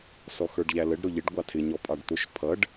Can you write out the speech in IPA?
sɔxə˞ɖʎæləɖ ɾʊʎɪɖ ɡʷɑtʰɪ ɲɔpʼɑɖt̪ʊʃ pʰʌɖ

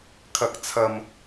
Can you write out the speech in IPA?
kʰɐ˨k̚t͡sʰɐ˨m

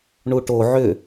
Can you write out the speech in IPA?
ɳuʈo ʕʏ

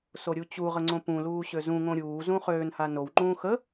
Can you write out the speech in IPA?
soɾʲut͡ɕuʁə ŋ͡ǀõpũluː ɕøzũŋõ ɾʲuːzũ χøːnha nowŋ͡ǃũː xə

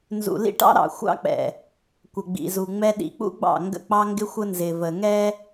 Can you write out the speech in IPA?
nzṵ˨ lḭ˦ʈɑ̰˦ ɾɑ̰˨xʷɑ̰˦k͡pɛ̰˨ | kʷə˨ɡ͡bḭ˨zu˨ŋ͡mɛ˦ ɗḭ˨k͡pṵ˦ɡ͡bɑ̰˦˨ ŋɡə̰˦k͡pɑ˦ŋɡɪ˦xʷə˦ nzɪ˨və˨ ŋɛ˦

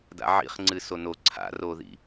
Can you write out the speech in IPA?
da̰ʕḭχ ŋ͡ǀɨsono ǀʰa̰roðḭ

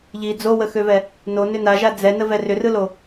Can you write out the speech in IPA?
ʎi d͡zowəxøvɛ | nonʏ naʒa d͡zɛnəvɛ rʏrɯlo

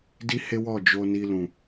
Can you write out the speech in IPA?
di˦he˦wɔ˦˨d͡ʒo˧ ni˧lũ˨

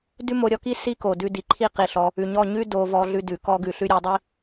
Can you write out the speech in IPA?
dʉ˦mo˧ɾʲɔ˧ki˦ si˦ko˨ dʉ˧di˨ǃʰi˦ qi˧ ɬɔ˧ | ʉ˨ɲɔ˦˨ ɲʉ˦ do˧ vɔ˧ɮʉ˧dʉ˨ kɔ˧ɡʉ˨ɬʉ˧ ɾʲʉ˨˦dˤi˦

